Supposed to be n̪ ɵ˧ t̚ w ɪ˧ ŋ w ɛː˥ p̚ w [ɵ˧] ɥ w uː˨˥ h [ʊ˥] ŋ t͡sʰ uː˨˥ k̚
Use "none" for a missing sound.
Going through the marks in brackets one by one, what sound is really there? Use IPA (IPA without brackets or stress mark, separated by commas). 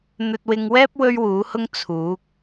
ɵ˥, ʊ˥